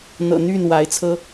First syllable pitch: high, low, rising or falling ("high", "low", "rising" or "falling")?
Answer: low